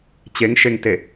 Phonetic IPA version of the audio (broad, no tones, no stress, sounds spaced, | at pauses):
t͡ɕ e ŋ ʃ e ŋ t e